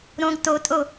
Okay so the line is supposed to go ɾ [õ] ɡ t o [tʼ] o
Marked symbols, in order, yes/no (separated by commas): yes, yes